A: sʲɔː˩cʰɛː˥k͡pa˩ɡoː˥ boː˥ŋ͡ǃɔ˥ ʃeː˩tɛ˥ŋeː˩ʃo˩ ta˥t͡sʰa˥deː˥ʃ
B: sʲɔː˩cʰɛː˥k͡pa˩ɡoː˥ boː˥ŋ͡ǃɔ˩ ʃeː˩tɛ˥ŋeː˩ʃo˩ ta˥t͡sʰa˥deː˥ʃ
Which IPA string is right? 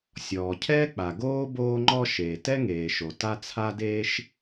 A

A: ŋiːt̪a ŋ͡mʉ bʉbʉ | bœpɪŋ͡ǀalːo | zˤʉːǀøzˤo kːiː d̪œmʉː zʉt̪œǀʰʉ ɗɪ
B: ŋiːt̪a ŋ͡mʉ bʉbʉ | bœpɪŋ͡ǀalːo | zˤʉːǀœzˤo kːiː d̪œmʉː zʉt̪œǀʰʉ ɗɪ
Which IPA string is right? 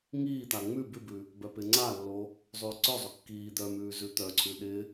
B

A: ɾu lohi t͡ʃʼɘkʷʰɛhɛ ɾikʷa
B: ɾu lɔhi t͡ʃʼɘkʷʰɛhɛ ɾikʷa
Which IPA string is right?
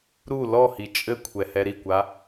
B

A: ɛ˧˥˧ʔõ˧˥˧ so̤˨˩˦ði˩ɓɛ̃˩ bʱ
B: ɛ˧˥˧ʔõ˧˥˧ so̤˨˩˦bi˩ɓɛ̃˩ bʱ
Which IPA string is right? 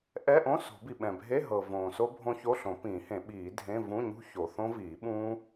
B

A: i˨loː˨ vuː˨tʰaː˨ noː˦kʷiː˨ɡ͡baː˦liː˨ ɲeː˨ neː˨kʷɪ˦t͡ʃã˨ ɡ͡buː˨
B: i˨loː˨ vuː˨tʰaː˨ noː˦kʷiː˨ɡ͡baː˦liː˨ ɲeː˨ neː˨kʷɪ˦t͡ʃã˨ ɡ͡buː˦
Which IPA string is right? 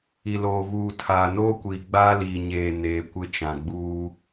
B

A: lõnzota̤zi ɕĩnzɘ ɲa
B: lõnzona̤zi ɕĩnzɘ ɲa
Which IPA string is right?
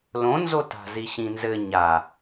A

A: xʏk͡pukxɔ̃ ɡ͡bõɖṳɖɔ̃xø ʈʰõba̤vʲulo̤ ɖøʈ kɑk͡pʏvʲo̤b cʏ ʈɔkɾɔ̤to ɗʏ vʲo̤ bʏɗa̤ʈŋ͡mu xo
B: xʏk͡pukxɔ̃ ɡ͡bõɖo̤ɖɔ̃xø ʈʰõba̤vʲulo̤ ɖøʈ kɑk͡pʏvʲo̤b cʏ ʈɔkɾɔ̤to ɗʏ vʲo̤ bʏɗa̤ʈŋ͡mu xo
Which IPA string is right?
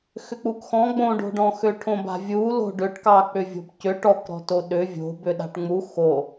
B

